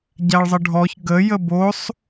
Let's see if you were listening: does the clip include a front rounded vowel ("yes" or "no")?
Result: no